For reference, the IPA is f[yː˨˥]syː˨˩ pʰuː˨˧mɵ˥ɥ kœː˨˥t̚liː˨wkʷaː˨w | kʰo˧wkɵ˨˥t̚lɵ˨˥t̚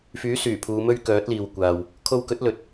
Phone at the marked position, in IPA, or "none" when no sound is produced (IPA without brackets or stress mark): yː˨˥